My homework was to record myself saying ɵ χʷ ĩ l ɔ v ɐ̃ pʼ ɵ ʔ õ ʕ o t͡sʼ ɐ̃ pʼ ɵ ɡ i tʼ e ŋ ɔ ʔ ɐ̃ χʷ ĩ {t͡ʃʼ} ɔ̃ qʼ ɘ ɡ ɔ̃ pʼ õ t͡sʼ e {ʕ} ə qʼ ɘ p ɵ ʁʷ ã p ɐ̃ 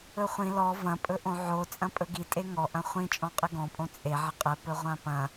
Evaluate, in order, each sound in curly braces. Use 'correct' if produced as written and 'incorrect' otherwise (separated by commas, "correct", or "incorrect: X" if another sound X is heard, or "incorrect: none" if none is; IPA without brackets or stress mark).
correct, correct